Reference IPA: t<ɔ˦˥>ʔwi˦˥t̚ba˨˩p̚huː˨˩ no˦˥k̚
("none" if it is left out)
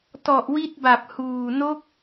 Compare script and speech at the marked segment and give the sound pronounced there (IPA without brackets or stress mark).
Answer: ɔ˨˩